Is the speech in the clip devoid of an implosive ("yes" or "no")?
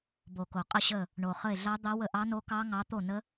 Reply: yes